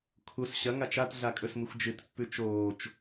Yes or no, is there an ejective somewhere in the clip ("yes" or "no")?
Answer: yes